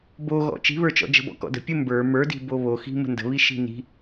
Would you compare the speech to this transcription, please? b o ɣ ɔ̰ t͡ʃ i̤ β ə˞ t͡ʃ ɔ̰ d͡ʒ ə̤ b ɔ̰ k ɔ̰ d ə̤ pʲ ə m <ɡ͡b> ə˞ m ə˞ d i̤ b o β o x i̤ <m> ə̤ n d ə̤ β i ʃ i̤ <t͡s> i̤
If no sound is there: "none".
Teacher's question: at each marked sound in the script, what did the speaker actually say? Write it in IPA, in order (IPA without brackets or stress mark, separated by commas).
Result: b, m, n